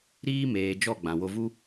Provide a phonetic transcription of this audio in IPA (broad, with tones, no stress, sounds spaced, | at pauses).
ɾ iː˦ m eː˨ d͡ʒ ɔ˦˨ ɡ͡b ã˨ w o˧ v u˦